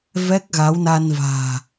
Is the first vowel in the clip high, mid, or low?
mid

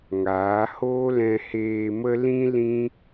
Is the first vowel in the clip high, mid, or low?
low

